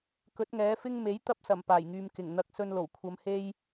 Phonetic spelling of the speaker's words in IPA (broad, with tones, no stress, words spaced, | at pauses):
kɵ˨˥t̚ŋɛː˨˥fɪ˥ŋ me˨˥jt̪ɐ˧p̚sɐ˨˩m paː˨˩jŋyː˨m kɪ˨˩ŋ n̪ɐ˨k̚sɵ˨n lo˨˩wkʷʰɐ˨˧m he˧j